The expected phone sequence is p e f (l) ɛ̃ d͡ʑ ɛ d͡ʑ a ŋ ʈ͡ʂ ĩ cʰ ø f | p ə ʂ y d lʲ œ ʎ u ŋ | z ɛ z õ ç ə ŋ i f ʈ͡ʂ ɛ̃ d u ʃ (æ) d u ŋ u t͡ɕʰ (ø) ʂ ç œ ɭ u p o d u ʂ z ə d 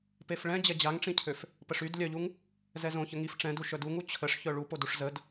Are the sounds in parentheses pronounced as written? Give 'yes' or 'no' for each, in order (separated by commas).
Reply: no, no, no